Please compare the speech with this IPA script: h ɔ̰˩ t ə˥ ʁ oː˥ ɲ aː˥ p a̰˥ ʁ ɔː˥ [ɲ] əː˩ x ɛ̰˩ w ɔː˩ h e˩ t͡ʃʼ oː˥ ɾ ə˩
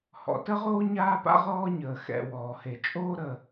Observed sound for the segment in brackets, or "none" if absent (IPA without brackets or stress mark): ɲ